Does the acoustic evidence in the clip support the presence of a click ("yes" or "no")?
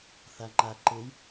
yes